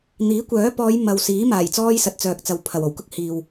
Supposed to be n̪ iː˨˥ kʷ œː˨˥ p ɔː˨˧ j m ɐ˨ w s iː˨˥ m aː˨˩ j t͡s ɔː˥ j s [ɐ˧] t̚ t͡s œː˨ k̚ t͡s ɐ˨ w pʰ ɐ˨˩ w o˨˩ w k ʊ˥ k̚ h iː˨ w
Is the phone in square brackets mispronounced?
yes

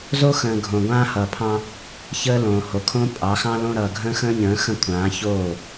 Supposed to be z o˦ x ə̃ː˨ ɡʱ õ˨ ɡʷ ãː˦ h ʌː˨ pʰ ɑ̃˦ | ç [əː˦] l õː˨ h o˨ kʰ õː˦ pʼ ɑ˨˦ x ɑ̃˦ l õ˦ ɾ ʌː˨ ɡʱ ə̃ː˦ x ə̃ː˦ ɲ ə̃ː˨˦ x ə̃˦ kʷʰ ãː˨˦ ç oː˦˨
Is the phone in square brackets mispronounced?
no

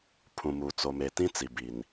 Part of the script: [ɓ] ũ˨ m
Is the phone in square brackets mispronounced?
yes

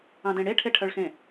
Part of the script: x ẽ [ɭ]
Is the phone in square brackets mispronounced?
yes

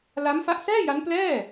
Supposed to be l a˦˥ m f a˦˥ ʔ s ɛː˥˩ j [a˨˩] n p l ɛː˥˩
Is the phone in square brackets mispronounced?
yes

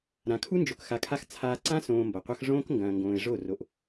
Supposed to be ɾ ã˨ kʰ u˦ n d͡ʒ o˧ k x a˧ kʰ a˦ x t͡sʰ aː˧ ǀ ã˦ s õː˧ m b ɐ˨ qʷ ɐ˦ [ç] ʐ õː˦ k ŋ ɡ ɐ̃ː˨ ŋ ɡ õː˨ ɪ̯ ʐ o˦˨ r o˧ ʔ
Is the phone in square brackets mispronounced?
yes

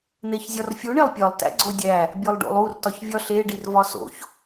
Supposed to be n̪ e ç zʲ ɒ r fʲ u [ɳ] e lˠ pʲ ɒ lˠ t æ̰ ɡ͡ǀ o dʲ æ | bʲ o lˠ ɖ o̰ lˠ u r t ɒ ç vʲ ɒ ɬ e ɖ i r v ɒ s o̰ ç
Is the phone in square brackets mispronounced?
no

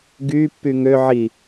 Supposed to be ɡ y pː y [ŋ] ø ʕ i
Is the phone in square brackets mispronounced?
no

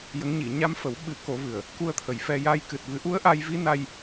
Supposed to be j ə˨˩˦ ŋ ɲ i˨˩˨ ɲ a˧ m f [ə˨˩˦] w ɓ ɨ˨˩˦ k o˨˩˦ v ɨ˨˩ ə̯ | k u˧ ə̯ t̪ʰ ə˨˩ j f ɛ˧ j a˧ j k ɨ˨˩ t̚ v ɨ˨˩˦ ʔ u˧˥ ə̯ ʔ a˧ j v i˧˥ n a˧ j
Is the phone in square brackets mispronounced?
no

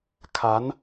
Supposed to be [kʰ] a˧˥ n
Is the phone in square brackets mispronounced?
no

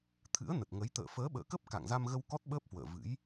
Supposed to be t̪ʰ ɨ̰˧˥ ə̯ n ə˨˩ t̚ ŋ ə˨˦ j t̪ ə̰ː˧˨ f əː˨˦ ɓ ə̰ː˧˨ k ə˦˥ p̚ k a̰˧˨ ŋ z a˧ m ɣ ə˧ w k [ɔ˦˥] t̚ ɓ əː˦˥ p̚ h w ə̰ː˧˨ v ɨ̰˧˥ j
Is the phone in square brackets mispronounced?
no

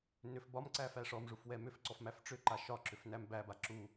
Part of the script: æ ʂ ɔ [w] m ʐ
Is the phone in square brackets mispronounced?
yes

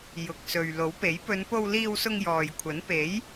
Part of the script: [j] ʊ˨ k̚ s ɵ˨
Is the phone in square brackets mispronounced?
no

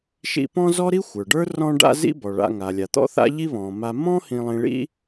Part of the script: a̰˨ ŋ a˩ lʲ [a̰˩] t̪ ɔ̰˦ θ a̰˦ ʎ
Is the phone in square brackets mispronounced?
yes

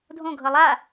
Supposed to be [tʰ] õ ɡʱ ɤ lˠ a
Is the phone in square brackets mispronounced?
yes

